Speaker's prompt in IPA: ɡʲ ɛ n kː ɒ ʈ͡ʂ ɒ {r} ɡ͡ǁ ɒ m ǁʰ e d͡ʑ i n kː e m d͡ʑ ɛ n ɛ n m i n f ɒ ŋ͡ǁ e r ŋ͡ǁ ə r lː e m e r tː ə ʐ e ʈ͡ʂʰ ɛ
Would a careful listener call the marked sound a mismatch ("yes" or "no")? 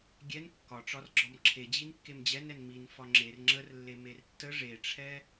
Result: no